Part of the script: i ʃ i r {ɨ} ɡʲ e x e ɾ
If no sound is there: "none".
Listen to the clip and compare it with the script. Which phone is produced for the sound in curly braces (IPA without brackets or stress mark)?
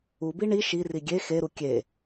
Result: i